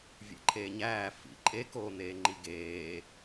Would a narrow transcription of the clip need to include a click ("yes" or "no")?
yes